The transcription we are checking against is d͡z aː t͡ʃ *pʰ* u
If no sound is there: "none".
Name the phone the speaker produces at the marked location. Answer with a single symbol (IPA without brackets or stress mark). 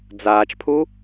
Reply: pʰ